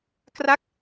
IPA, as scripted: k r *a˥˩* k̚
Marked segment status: correct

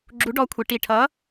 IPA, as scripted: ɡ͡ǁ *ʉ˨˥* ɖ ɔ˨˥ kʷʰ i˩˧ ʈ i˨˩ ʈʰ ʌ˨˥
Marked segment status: incorrect: u˨˥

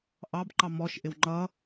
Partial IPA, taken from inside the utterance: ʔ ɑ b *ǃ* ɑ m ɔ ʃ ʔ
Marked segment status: correct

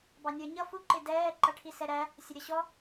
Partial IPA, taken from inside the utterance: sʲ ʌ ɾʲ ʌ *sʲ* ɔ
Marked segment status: incorrect: ɕ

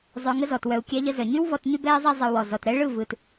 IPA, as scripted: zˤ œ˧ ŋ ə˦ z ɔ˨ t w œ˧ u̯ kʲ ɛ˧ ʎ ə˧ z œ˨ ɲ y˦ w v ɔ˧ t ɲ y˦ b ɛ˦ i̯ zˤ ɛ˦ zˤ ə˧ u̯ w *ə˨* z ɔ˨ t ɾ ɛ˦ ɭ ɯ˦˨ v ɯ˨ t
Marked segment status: incorrect: ɔ˨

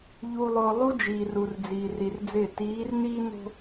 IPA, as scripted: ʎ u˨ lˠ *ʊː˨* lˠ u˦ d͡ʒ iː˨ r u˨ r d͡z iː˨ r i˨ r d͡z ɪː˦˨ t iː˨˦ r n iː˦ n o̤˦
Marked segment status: correct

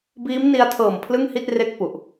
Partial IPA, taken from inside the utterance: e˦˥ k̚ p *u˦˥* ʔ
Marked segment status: incorrect: u˨˩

